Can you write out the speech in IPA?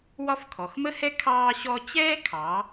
w ɒ˥ f kʰ ɔ˩˧ x m ə˥ h ɛ˥ kʰ ɑː˥ ɕ ɔ˥ t͡ɕ ɛː˥ kʰ ɑ˩˧

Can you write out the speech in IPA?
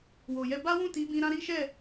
w o˨ j ɛ˧ b a˦ w ũ˦˨ t i˨˦ b ĩ˧ ɾ ã˦ ɾ i˦ ʃ ɛ˦˨

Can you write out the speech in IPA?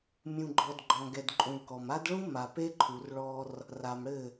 mʲ ũ˨ ɡ͡ǃ ɔ˨ d ɡ͡ǃ ɔ̃˨ ɡ ɛ˨ d ǃʼ ũ˨ ɭ k ɔ˨ m a˦ d ɭ ũ˦ m a˨ p e˦ ǃʰ u˨ r ɭ ɔ˦ r | r a˨ m ɽ ɘ˦˨

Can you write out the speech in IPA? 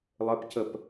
lˠ ə p c ə p

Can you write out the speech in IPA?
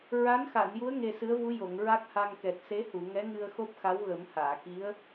ɹ a˧˥ n x a˨˩˨ n j u˧˥ ə̯ ŋ e˧ s ɨ˧˥ ə̯ v u˧˥ j o˨˩˨ ŋ ɹ a˦˥ k̚ h a˧ ŋ k ɛ˨˩ t̚ s e˧˥ h u˨˩˨ ŋ ɛ˧˥ ŋ ɨ˧ ə̯ x o˦˥ p̚ x a˧˥ w ɣ ə˨˩˦ m h aː˨˩˨ k i˧˥ ə̯

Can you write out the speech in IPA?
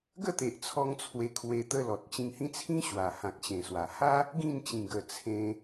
ɡ ə˥˧ t̪ e˨ ʔ t͡sʰ ɔ˧ ŋ t͡sʰ w e˧ kʰ w e˧ t̪ ə˦ l ɔ˨ t̚ t͡ɕ ĩ˧ ŋ h ĩ˦ t͡sʰ ĩ˦ ɕ w a˨˩ h ã˨ k̚ ɕ ẽ˨˩ s w a˨˩ h a˦ | ɡ ĩ˥˧ n t͡ɕ ĩ˨˩ ɡ ə˨˩ t͡sʰ ẽ˧

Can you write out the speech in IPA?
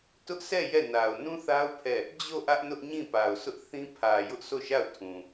t ʊ˦ ʔ s ɛ˦˨ j ɛ˦˨ n a˨ ʊ̯ n ũ˦ θ a˦ ʊ̯ pʰ ɛ˦˨ | d͡ʑ o˦˨ ʔ ä˦ ʔ n ʊ˦ ʔ ɲ ĩ˦˨ p a˨ ʊ̯ s ʊ˦ ʔ θ ĩ˦ pʰ ä˨ j ʊ˦ ʔ sʰ o˦˨ ʃ a˦˨ ʊ̯ tʰ ũ˨

